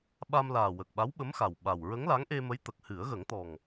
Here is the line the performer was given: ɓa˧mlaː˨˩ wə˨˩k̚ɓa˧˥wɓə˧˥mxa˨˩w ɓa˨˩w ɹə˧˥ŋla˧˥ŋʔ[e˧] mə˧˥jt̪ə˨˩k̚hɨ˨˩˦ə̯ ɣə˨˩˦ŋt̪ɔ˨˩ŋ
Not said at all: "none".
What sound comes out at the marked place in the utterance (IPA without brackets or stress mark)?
e˧